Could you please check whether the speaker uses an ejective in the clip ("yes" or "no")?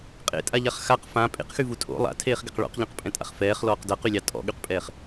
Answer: yes